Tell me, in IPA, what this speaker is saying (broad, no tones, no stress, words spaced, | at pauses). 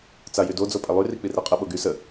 t͡sajydod͡zo pʼɛlˠyri k͡pireqʼəɓo ɡy sə